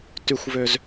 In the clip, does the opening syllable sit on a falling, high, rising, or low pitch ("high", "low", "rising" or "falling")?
high